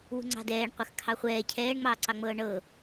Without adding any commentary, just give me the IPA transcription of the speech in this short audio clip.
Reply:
w ṳ ŋ͡ǀ ɑ̤ d ɛː ɳ qʷ ə˞ x kʰ ɑ χʷ ɛː cʰ ɛː ɳ ŋ͡m ɑː ǀ ɑ ŋ͡m ɤː ɳ ɤ

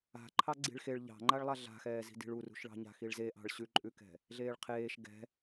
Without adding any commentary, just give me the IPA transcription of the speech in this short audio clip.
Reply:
a̤ ǃʰ ɑ ɡ͡ǀ i̤ ɭ x e ɭ ʎ ɑ̤ ŋ͡ǃ a ɭ lˠ a ɮ a̤ x ɛː z i̤ d i̤ ɭ u r ṳ ʃ ɭ ɑ̤ ɲ a̤ x i ɭ z e ʔ ɑ̤ ɭ ɕ ʉ ǃʼ ʉ k ɛ̤ | ɮ eː ɭ qʰ eː ʃ ɡ ɛ̤

